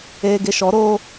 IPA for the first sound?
eː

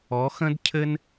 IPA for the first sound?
ɔ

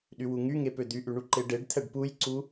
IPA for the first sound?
ɗ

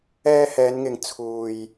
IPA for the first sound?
ɛː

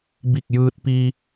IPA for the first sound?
b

